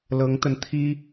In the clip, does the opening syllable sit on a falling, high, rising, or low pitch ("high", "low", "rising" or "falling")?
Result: rising